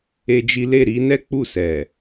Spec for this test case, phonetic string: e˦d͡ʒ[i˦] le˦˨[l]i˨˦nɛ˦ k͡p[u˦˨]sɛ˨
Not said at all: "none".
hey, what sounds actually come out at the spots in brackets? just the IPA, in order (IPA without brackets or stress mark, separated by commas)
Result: i˦, ɾ, u˦˨